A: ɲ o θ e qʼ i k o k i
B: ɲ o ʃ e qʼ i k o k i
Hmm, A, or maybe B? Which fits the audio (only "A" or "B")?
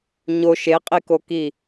B